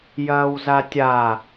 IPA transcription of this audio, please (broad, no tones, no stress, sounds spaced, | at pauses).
j ɐː w z a tʲ a